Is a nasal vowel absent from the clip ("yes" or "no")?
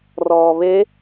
yes